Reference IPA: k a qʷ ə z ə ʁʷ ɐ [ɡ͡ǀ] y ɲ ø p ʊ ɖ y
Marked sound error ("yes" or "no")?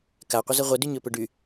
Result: yes